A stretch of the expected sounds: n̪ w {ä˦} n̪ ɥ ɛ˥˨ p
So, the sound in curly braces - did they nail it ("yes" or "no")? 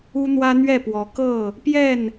yes